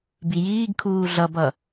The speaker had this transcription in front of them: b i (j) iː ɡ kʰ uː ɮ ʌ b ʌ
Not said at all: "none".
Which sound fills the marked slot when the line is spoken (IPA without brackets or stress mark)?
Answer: j